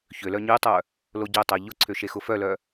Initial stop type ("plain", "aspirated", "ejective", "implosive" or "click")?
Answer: plain